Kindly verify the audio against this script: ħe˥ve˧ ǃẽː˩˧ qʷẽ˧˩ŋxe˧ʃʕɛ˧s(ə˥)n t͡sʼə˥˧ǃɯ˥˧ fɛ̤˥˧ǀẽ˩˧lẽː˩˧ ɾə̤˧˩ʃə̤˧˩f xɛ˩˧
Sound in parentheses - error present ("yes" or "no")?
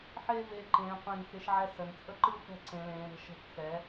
yes